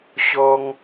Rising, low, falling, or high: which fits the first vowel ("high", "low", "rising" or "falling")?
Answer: high